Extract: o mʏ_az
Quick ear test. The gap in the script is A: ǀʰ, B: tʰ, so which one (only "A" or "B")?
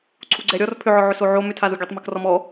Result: B